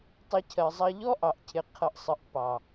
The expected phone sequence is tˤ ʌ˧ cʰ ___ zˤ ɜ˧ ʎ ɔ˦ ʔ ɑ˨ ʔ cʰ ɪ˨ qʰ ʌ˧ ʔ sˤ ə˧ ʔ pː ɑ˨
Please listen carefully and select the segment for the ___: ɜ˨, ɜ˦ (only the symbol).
ɜ˨